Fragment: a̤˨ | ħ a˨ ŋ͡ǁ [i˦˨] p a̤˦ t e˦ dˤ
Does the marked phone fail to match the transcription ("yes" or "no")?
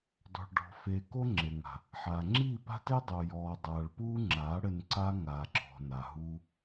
no